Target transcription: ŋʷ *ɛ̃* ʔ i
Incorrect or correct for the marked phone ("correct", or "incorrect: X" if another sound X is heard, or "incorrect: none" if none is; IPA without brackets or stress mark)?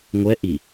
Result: incorrect: ɛ